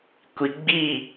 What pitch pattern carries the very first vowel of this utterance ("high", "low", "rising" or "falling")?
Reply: low